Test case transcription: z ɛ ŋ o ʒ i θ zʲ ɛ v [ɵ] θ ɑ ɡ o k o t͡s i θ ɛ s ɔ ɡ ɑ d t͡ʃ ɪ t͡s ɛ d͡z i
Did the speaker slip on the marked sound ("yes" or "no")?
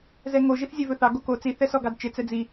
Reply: no